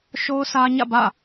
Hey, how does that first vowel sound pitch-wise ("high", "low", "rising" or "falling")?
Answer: high